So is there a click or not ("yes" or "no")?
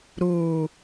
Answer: no